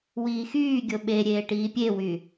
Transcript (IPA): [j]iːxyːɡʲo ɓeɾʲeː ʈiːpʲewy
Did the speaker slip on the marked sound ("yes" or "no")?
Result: yes